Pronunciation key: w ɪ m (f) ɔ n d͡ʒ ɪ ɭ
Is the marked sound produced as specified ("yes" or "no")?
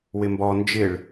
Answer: no